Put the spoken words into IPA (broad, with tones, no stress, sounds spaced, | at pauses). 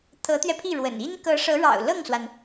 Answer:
t̪ʰ ɤ˧˥ t̪ ɥ ɛ˧ pʰ i˥˩ ɻ w ə̰˨˩ n i˥ n k ɤ˧˥ ʂ ɤ˧˥ ɻ ɑ̰˨˩ ʊ̯ l ɤ˥˩ ŋ s w a˩ n